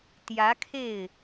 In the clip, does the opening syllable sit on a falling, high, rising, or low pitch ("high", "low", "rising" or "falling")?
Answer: rising